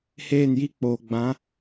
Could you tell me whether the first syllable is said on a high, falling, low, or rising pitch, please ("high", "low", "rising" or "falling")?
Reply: falling